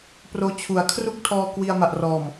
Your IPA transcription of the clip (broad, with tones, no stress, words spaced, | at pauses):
proː˦˥t͡ɕʰu˨˩a̯ kʰru˥˩k̚tʰɔː˧ kwi˧a̯ma˨˩ʔrɔː˨˩m